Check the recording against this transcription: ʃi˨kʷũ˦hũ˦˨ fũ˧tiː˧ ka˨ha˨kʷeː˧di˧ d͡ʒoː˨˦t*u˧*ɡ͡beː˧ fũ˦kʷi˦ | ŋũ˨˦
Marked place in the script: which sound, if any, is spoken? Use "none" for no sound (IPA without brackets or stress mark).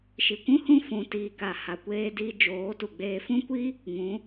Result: u˨